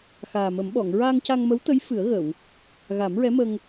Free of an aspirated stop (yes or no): yes